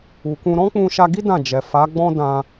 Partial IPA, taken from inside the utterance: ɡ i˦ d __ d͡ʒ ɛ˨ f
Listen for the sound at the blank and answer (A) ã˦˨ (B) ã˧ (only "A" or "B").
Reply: A